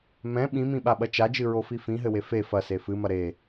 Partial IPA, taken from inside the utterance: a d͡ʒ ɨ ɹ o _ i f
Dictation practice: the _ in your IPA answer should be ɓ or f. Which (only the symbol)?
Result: f